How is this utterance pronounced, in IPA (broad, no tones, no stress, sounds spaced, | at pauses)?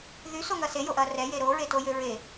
ð y s o ŋ ɐ s e j o ʔ ɐ r ɛ j e ɾ o ɹ e t o j ø ɹ e